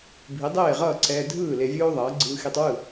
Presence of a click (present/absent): present